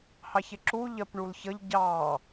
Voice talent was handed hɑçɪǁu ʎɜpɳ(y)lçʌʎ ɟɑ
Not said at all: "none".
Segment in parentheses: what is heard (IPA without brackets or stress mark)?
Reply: u